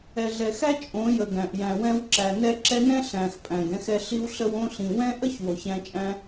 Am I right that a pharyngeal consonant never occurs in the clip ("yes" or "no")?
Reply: yes